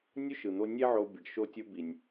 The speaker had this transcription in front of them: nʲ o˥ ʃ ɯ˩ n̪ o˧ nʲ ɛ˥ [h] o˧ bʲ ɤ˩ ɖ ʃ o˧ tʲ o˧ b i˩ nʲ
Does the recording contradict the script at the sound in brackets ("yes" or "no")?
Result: yes